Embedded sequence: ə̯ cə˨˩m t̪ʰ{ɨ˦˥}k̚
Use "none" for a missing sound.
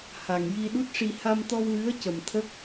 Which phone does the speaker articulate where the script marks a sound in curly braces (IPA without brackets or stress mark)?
ə˦˥